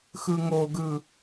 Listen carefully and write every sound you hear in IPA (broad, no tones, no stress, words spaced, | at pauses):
xɯŋoɡɯ